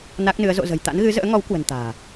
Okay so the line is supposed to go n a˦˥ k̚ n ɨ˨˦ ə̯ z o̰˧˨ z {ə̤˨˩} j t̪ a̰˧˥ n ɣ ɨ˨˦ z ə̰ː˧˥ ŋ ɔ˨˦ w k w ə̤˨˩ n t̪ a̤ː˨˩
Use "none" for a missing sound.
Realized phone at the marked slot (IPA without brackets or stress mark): ə̤˨˩